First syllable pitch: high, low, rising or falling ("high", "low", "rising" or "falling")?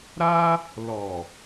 high